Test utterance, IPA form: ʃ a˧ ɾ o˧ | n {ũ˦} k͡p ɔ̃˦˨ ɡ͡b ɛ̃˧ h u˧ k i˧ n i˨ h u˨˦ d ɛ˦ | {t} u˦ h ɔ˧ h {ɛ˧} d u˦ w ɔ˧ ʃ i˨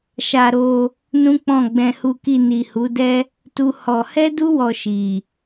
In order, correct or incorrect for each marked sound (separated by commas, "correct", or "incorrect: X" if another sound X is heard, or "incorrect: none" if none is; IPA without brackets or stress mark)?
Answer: correct, correct, incorrect: ɛ˦